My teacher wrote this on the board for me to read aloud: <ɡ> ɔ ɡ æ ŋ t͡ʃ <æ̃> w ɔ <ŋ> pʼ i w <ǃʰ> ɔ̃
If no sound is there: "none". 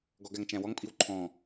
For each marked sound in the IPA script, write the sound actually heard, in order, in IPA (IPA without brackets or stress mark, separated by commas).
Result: ɡ, æ̃, ŋ, ǃʰ